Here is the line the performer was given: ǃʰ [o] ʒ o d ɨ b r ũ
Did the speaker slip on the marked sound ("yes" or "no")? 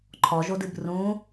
yes